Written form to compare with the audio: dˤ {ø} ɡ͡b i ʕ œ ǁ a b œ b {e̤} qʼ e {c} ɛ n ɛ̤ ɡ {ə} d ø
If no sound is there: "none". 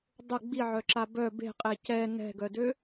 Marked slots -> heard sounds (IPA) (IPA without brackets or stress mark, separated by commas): ə, e̤, c, œ